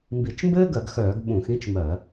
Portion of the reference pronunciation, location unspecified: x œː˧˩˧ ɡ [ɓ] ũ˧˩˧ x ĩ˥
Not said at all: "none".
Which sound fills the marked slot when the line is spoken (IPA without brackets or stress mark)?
ɓ